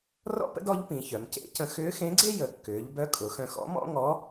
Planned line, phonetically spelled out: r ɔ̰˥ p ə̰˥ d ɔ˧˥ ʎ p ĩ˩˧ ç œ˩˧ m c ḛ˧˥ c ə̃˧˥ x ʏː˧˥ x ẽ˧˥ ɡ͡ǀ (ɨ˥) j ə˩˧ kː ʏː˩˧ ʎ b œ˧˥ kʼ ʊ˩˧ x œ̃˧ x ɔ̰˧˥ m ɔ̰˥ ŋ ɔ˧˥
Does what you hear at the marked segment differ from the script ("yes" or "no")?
yes